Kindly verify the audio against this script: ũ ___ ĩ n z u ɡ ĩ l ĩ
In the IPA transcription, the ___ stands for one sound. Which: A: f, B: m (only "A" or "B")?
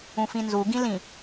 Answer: A